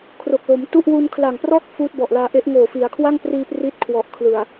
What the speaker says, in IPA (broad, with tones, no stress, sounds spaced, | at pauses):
kʰ r o˨˩ k̚ l o˩˦ m t u˥˩ ʔ w u˧ n kʰ l a˨˩ ŋ p r ɔː˥˩ k̚ f uː˦˥ t̚ b ɔ˨˩ ʔ l aː˧ ʔ e˦˥ ʔ ŋ oː˨˩ f i˩˦ a̯ kʰ w a˥˩ ŋ p r iː˧ p r i˦˥ t̚ kʰ w ɔ˨˩ ʔ kʰ l ɯ˨˩ a̯